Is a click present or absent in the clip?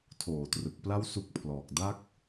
absent